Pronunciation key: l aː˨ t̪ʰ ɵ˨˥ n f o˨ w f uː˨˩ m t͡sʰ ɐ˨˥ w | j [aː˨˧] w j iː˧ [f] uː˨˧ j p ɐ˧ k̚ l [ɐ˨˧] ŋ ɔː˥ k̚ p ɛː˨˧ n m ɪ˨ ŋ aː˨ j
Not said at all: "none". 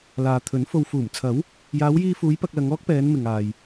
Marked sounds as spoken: aː˨˧, f, ɐ˨˧

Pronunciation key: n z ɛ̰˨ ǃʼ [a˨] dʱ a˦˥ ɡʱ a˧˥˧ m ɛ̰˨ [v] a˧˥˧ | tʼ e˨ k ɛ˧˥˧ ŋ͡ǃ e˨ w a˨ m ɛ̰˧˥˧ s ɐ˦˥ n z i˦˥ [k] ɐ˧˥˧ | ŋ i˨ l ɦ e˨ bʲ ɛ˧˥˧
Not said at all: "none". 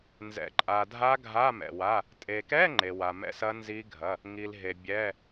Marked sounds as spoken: a˨, w, ɡʱ

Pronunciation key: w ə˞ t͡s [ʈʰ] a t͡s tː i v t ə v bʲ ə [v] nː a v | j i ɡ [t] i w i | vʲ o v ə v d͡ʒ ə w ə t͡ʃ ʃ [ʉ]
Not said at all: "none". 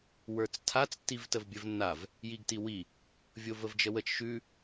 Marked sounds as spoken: tʰ, v, t, ʉ

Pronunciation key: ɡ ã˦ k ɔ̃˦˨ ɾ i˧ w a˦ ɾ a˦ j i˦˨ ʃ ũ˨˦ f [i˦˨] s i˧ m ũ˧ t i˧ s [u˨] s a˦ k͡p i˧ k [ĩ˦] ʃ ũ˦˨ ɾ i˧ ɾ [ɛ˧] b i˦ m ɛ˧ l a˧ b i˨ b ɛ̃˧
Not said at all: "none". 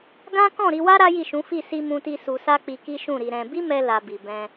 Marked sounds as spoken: i˦˨, u˧, i˦, ɛ̃˧

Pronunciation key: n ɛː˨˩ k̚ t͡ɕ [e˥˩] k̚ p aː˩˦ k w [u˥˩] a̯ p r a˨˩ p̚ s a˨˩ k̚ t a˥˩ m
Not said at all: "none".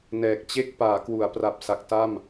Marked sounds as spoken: e˥˩, u˩˦

